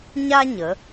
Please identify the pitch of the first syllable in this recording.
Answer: high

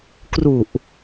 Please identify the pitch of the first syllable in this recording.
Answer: low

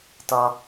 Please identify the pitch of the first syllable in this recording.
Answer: low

